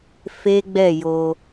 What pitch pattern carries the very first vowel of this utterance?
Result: high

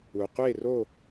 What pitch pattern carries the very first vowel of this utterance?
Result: low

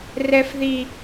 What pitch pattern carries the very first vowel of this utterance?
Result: high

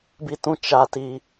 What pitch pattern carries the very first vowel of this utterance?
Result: high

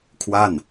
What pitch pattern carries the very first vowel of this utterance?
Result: falling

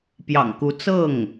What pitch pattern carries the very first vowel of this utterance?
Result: low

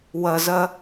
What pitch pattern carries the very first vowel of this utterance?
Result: low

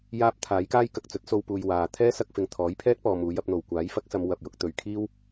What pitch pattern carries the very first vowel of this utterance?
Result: high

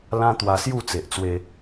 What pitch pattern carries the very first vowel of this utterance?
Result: high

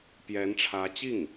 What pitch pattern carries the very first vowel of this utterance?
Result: rising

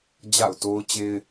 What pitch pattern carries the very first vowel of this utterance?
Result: falling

